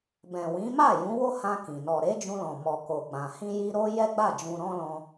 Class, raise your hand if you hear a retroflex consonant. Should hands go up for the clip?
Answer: no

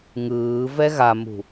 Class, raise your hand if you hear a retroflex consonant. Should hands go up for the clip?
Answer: no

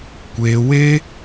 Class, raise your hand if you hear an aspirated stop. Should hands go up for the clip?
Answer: no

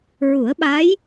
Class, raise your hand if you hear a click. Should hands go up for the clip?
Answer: no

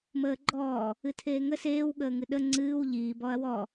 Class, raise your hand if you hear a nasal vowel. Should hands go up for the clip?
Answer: no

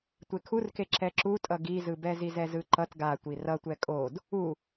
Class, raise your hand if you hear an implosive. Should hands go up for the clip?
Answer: no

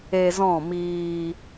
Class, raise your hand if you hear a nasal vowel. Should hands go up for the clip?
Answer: yes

